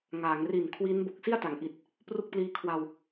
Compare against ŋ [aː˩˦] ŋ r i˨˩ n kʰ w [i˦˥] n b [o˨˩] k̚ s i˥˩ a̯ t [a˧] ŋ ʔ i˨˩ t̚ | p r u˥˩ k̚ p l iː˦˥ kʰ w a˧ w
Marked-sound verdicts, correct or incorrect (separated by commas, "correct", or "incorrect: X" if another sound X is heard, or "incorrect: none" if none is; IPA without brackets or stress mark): correct, correct, correct, incorrect: a˩˦